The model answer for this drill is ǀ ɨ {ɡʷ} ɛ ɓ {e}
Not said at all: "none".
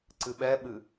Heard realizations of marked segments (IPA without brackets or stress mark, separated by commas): ɓ, ɨ